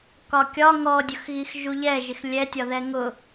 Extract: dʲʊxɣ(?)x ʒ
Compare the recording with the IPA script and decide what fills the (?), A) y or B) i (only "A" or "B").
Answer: B